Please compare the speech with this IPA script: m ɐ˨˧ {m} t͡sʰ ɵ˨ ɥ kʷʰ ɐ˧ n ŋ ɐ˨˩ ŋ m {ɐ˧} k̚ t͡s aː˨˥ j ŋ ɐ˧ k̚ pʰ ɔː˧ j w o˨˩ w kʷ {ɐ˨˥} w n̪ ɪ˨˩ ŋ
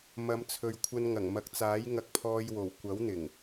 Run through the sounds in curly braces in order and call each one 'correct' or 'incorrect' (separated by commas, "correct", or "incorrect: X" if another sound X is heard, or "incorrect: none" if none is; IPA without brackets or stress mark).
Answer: correct, incorrect: ɐ˨˥, correct